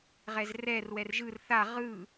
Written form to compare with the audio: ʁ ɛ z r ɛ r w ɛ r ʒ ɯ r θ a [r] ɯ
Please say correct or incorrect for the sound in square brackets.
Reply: incorrect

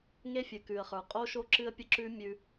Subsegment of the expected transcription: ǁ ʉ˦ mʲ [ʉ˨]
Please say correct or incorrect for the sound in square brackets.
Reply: incorrect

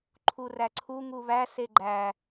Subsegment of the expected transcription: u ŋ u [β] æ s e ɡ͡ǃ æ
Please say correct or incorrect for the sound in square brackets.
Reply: correct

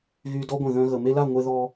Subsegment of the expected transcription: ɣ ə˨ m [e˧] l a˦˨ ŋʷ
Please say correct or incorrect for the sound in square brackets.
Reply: correct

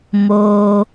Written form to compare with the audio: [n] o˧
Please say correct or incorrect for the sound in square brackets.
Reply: incorrect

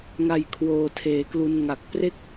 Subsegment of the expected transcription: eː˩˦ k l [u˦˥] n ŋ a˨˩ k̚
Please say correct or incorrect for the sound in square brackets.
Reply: incorrect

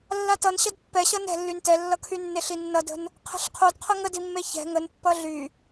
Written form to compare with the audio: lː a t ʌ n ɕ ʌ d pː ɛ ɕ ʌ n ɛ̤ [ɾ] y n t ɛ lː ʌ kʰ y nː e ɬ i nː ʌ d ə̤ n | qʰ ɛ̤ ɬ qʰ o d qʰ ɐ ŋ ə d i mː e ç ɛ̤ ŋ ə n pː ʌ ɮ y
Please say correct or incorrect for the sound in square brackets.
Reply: incorrect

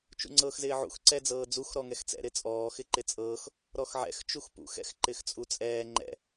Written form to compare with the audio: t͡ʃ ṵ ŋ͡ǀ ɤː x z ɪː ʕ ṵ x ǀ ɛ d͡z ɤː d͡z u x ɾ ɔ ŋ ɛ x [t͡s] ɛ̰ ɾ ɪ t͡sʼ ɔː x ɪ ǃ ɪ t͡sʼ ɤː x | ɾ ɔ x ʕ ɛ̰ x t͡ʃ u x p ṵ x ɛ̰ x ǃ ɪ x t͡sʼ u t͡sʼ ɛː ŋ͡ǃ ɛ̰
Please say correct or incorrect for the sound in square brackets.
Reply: correct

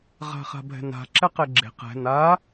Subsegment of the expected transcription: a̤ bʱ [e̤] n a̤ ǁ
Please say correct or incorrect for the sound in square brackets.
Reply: incorrect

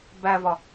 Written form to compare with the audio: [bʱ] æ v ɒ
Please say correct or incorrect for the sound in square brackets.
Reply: incorrect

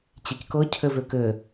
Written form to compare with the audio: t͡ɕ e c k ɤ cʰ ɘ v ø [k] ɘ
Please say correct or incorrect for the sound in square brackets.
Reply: correct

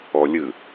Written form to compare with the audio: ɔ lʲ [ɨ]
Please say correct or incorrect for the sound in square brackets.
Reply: correct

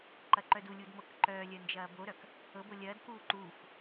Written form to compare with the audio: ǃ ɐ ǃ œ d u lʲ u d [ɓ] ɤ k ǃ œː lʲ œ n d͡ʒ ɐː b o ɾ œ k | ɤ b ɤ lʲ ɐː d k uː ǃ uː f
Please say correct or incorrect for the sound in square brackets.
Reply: incorrect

